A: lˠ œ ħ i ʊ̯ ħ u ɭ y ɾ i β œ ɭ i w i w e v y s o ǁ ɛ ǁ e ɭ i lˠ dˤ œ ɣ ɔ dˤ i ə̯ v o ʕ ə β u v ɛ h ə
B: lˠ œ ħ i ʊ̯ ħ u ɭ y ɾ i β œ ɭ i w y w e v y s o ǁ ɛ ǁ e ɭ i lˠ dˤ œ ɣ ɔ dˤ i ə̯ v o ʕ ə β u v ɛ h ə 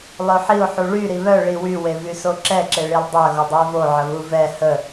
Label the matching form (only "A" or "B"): B